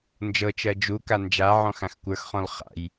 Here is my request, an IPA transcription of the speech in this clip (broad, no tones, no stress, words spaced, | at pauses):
nd͡ʒɤt͡ʃɜ d͡ʒuka nd͡ʒaʕɔ̃ xãxkʷə˞xχɔ̃l χa̰j